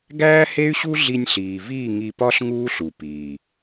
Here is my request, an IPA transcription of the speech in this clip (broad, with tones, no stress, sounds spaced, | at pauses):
ɡ æː˦ h e˦ y̯ ɕ u˦ ɮ i˧ nʲ ɬ iː˨ v iː˦˨ ŋ i˧ p ɒ˦ ɬ ŋ uː˦ ɬ u˨ p iː˨